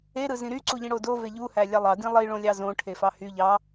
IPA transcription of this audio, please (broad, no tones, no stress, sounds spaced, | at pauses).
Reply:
e ɾ ɯ z ĩ ɾ y ǀ u ʎ ĩ ɽ o d o v e ʎ u h æ lʲ ɑ lˠ ɑ d ĩ lˠ i ɭ õ lʲ ɑ z õ ʈʰ e f ɑ h y ʎ ɑ